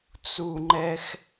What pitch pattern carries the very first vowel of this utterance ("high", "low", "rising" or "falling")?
low